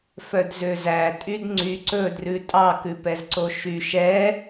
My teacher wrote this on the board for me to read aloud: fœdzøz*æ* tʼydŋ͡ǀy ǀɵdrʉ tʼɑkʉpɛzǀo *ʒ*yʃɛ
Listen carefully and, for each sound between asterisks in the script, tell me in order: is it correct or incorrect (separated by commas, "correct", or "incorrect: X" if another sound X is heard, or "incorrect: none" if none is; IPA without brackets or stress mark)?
correct, incorrect: ʃ